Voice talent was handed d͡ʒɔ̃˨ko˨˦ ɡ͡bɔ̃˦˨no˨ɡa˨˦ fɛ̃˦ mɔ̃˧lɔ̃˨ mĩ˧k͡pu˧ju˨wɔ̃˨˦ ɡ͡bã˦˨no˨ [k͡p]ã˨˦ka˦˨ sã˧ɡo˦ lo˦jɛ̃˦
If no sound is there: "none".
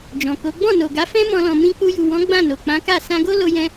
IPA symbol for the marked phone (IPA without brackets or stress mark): k͡p